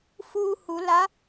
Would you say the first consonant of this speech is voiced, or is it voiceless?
voiceless